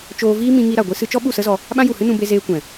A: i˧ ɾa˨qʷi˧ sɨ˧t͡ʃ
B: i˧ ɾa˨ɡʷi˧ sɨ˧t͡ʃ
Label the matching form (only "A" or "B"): B